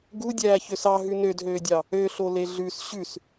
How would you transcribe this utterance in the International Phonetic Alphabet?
ɡudʲæːçøs ɑɦʉ nødɦøːdʲɑ | øɬole ɮʉs ɕʉs

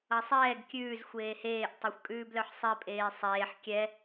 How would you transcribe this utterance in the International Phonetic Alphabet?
ʌsˤɛːɡ kʲʉːz xʷeːheːʔ tˤʌxʷkʼʉːblœħsˤe pʼeːsˤeːħ kʲɛ

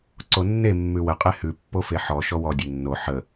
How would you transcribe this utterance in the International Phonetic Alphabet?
ǀonːe mːʉwə qʼehʉ pːofeħɔ ʃɔwɔ dʲenːo ħə

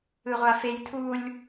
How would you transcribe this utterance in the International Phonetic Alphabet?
ɯʁʷafej tʰulʲ

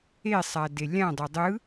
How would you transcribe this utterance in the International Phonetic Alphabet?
esˤa delʲãdˤo dˤɯ

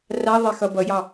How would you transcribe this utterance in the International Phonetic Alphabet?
raðˤexʌ bʌjɑ

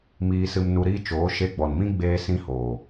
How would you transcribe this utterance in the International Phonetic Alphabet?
miː˧sɨ˧m nu˧ɾiː˦t͡ʃoː˨˦ ʃe˧ɡ͡bɔ˨nmĩ˦ ɡ͡beː˦sĩ˦hoː˨

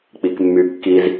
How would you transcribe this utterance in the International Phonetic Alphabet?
k͡pikmːykːiz

